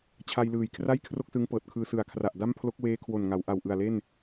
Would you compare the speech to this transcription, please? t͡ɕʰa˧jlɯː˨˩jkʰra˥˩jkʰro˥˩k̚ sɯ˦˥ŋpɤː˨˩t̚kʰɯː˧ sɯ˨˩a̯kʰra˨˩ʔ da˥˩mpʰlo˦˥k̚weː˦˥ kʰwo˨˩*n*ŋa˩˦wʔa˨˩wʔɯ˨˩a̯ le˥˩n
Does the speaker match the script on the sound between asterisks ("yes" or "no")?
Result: yes